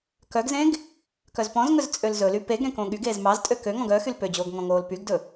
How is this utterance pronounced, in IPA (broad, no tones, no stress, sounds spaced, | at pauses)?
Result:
k œ ɡ z ẽ ɡ | k œ z p ɔ̃ z ŋ ɵ z t͡sʼ ø l z ɵ l y p e ɡ ɾ ẽ k õ ɠ y ɡ eː z m ɑ z tʼ ø k ø ŋ ɔ̃ ɡ œ x y l p ø d͡ʑ oː ɡ ŋ ɔ̃ ŋ oː l p y ɡ d ɵ